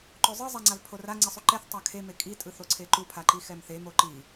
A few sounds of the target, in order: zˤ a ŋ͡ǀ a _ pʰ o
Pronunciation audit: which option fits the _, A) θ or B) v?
B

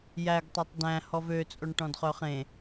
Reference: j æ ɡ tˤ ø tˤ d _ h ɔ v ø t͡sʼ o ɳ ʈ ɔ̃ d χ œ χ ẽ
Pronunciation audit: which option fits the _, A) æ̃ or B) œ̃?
A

